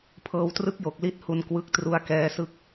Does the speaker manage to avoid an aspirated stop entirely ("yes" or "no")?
no